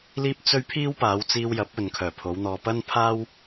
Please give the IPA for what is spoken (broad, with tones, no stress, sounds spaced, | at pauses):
l iː˥ p̚ t͡s ɵ˥ ɥ pʰ iː˥ w p aː˨˧ w t͡s iː˧ w j ɐ˨˥ p̚ ɵ˨ n kʰ œː˨˩ pʰ o˨˧ w n̪ ɔː˨ p ɐ˥ n pʰ aː˥ w